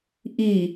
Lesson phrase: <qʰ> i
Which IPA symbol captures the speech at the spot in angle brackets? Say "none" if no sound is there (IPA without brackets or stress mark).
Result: ʔ